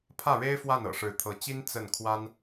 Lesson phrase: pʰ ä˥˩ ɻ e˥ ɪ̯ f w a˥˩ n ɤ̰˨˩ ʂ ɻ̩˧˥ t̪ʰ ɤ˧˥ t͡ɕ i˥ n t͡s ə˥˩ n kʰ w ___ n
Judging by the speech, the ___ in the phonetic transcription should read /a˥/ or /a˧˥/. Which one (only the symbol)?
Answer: a˥